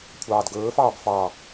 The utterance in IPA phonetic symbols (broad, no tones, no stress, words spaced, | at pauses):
kʷʰɑːdɡɵːfɑːb fɑ